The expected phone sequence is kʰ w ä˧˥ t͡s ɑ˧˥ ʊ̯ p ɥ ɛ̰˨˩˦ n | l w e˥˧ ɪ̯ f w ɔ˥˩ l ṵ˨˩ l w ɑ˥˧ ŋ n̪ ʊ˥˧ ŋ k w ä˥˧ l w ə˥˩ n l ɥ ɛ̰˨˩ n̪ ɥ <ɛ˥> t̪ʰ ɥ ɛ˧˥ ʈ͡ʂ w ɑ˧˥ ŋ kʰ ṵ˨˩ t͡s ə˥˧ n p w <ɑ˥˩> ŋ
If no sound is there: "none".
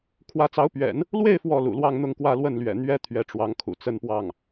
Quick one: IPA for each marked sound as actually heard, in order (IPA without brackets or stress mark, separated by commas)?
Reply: ɛ˥, ɑ˥˩